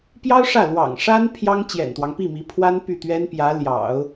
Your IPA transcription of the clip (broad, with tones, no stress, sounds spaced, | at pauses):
p j ɑ˥ ʊ̯ ʂ ä˥˩ l w ɑ̰˨˩ ŋ ʂ a˥ n pʰ j ɑ˥ ŋ t͡ɕ j ɛ̰˨˩ n t̪ w ɑ˦ ŋ p i˥˩ m i˧˥ pʰ w a˥ n p y˥˩ t̪ ɥ ɛ˥ n p j ä˧˥ l j ɑ̰˨˩˦ ʊ̯